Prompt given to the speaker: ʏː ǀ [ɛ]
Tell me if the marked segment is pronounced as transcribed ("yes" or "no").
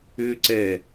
yes